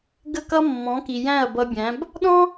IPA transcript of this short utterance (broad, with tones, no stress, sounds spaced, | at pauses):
ɡ ə˦˨ k ʌ˦ mː ɔ̃˨˦ k i˨ j æ̃˦˨ ɐ̯ b ʌ˧ bʲ æ̃˨˦ b | ɗ ɔ̃˦